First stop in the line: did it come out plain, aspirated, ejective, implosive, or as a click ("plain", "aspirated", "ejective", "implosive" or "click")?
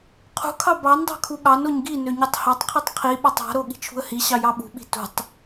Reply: aspirated